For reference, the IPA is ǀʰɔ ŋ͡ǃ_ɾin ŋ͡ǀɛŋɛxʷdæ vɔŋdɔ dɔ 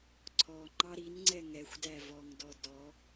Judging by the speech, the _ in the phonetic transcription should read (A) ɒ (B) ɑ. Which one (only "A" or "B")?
B